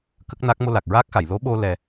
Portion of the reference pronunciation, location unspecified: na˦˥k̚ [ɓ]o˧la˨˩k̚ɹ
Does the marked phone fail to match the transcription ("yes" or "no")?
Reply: yes